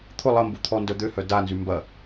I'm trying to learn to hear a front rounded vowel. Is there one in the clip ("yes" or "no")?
yes